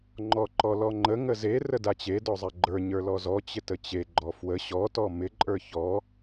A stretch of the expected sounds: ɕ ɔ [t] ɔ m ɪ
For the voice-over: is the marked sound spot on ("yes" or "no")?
yes